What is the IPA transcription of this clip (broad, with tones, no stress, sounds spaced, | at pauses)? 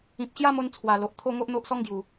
ĩ˨ p̚ ɕ j a˦ m o˧ n t͡sʰ w a˨˩ l o˨ ʔ t̪ʰ o˥˧ ŋ o˦ ʔ n̪ o˦ ʔ s ɔ˦ ŋ ɡ j u˨˩